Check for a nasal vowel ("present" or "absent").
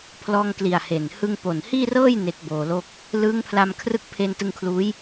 absent